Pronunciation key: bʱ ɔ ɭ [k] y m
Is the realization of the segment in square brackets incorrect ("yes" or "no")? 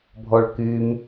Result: no